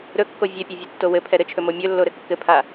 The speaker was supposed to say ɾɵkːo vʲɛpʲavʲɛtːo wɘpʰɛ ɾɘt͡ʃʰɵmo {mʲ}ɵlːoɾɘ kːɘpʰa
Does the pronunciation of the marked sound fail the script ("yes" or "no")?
no